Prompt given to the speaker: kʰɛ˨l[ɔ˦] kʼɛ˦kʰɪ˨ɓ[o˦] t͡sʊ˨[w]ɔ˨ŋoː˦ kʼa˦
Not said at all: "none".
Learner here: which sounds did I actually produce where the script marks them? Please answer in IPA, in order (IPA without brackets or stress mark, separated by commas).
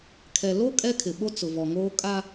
o˦, o˦, v